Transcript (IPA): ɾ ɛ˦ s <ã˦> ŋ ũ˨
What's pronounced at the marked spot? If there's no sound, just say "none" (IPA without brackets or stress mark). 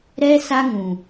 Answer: a˦